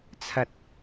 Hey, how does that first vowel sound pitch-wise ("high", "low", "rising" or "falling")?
low